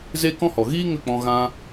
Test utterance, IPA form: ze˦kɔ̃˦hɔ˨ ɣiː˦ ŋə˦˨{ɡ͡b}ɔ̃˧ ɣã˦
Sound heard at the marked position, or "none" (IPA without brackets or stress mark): k͡p